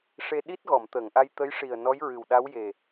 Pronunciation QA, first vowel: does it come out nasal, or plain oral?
oral